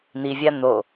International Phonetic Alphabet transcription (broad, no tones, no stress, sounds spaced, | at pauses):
n̪ i vʲ a n̪ o